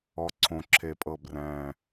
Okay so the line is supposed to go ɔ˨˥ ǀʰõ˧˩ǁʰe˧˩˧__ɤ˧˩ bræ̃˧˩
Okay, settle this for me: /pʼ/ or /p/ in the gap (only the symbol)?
pʼ